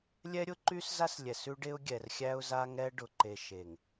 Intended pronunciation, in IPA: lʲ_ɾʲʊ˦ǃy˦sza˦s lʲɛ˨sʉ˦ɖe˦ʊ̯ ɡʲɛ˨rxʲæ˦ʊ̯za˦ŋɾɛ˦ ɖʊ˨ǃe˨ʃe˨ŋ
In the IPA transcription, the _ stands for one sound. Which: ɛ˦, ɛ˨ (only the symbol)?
ɛ˦